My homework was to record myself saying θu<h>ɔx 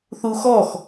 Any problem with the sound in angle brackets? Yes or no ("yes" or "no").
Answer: yes